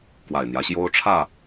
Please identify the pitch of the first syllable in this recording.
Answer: low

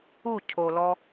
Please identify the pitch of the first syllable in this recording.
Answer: falling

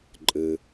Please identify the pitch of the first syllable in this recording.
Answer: low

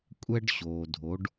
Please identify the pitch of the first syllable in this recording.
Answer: high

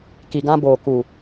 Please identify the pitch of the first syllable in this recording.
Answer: low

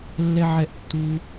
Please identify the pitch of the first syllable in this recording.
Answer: high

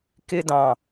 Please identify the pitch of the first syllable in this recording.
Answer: high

